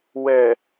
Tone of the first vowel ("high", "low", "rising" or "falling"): low